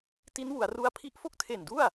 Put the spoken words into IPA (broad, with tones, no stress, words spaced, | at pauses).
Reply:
ti˦˥nwu˩˦a̯ru˧a̯ pʰi˦˥ʔfo˥˩k̚tʰe˨˩ndu˥˩a̯